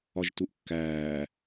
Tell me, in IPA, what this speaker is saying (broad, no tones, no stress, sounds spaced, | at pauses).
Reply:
ɒ ʒ t u ʔ kː æː